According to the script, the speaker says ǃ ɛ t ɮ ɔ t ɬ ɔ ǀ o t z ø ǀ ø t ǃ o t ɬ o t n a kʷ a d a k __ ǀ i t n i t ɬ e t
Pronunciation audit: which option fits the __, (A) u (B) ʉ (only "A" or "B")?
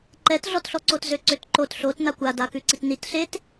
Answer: B